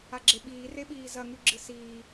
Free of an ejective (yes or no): yes